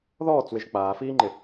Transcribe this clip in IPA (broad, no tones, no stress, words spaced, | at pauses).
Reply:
ðɔːt͡swɪʒ k͡paːfiːŋ͡ǃɪ